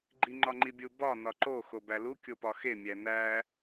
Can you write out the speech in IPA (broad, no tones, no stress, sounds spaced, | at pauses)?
ɡ͡ǃ i ŋ͡ǃ ɒ ŋ͡ǃ i bʲ u b ɒ n ɒ ǃ o x o b æ l u kʲ o p ɒ x e mʲ æ n æ